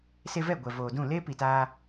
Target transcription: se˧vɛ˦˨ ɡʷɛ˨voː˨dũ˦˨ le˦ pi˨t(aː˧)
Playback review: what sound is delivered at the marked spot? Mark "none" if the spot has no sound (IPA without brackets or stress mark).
aː˧